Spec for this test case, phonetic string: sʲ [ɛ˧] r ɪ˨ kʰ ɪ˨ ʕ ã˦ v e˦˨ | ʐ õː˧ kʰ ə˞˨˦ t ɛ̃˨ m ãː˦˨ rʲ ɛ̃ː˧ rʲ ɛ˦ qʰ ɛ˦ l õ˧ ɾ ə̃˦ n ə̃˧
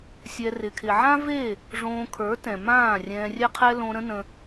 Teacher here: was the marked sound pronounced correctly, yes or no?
yes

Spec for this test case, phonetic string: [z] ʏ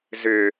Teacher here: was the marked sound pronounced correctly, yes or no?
yes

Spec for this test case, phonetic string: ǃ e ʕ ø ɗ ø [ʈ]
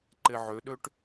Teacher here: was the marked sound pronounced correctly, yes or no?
yes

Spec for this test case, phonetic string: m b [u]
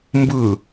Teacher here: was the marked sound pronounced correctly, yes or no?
no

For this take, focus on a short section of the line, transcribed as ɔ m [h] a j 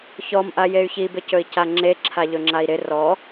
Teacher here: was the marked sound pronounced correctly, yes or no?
no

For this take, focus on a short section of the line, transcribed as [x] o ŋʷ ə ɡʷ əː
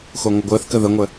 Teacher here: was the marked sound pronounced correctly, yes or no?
yes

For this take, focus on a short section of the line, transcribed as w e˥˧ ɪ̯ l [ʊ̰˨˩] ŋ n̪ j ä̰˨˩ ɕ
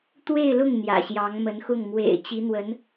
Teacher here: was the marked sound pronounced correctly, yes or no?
no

